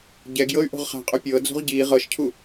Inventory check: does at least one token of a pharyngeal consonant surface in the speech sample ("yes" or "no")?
no